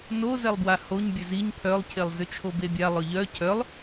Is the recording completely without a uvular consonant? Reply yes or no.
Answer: yes